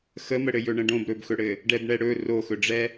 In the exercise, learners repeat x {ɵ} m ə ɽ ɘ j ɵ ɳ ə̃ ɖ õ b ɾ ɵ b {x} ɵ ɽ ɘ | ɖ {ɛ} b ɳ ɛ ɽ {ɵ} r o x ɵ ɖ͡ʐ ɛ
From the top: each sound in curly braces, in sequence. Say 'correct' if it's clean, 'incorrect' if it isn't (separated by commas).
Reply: incorrect, correct, correct, correct